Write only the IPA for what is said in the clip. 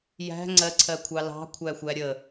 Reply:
jæ̤ ŋ͡ǀɜǀʰɜkʷʰɑ lɑ̤kʷʰæxʷæ ɾʲə

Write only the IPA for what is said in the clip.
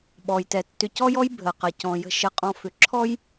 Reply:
ɓɔ˨jtɛ˨tːʏ˧ cɔ˦jɔ˦j bʱə˨qɐ˨ cɔ̃˨jə̤˧ ʃə˧qʼɔ̃˧ fʏ˨˦ ǁʰɔ˦j

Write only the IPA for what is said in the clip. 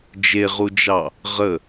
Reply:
d͡ʒeʁud͡ʒɑ | ʁə

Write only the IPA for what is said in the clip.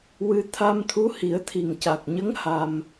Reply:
wɨ˧ t̪ʰa˧mt̪ʰu˧˥hi˨˩˦ə̯ t̪ʰi˨˩ŋca˨˩k̚ɲə˧˥ŋ ha˧m

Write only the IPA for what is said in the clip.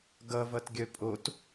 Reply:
ɡʌvʌtɡʲœ pʼot

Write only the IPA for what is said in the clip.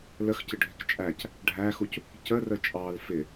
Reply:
ləxcɪɖʱɪk t͡ʃʼæc | ɖʱæxuc | cərə t͡ʃʼɑl fɪ

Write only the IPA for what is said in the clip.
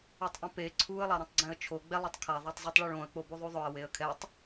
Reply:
utˤʔɛ̃pe ǀʰuə̯ lˠaɾõtˤɡ͡ǀɛ̃ə̯t͡ʃʰo ɡ͡bɛlˠetˤkʰa ðˤatˤzˤutˤɭɔɭõə̯ k͡pobuðˤuðˤʊə̯ weə̯kʰɛtˤ

